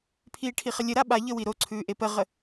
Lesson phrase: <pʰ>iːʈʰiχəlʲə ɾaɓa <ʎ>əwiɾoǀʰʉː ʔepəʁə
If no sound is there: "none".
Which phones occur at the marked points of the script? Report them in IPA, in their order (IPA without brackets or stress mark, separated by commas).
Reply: pʰ, ʎ